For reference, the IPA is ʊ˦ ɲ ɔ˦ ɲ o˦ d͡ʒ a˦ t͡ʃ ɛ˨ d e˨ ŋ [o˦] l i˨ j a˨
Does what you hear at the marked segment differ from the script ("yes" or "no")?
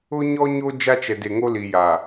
no